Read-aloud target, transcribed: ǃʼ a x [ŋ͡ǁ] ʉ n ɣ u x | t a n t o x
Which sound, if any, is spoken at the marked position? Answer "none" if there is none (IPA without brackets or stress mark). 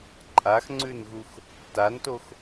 ŋ͡ǀ